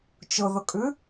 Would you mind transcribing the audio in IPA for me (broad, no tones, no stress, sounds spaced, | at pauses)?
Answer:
t͡ʃ ʊ ð ʊ kʼ ʉ